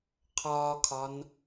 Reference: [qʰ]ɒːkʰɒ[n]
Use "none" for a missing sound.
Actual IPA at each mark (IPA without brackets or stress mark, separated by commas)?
qʰ, n